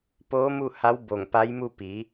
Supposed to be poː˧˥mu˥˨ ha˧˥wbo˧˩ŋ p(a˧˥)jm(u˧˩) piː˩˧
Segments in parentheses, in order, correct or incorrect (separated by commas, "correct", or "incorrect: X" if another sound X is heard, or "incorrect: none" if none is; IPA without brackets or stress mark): correct, incorrect: u˥˨